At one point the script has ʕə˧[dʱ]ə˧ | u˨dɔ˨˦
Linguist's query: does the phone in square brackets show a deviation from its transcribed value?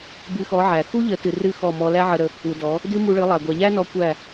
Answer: yes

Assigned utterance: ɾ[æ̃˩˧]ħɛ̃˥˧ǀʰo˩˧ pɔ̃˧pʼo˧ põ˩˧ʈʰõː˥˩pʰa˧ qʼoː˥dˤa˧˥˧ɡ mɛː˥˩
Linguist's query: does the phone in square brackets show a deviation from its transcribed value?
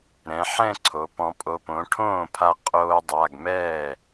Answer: yes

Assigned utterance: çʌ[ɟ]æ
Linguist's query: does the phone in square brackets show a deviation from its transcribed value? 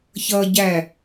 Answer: no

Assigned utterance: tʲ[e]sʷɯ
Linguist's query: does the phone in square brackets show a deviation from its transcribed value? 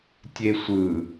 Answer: no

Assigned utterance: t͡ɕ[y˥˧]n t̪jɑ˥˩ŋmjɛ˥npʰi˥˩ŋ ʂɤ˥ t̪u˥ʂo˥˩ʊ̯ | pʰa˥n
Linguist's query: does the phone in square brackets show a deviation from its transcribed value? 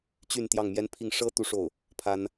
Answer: no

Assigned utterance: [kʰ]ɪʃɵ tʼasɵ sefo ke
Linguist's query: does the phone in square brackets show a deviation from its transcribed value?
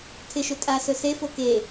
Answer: yes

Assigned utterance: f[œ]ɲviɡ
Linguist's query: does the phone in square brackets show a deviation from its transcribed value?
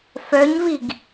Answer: no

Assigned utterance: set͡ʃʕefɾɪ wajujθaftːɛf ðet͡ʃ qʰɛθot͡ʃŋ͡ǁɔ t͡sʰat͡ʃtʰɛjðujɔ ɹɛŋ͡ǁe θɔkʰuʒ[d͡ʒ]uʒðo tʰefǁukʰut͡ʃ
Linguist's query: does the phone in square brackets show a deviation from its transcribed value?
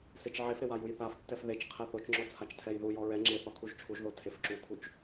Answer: yes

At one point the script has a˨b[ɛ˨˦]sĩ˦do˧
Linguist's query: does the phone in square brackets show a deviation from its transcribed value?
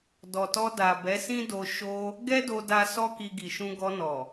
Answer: no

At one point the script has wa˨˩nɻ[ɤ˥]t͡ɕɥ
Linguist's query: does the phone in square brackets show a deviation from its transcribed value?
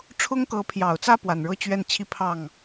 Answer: no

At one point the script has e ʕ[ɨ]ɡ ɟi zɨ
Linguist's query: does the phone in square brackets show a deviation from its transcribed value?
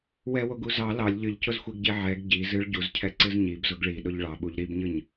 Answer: yes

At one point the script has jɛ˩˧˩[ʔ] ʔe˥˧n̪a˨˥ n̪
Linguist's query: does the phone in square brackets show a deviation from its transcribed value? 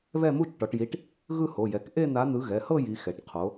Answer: yes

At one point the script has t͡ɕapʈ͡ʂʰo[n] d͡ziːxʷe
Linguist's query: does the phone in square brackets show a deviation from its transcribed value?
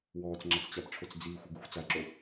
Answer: yes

